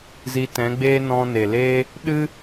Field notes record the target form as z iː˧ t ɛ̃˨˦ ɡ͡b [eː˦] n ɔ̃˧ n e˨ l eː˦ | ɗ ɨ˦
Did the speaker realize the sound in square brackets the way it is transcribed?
yes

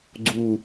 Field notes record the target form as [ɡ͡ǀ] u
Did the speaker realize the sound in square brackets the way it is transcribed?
yes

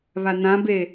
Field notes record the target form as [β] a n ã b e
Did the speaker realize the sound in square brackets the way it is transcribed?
yes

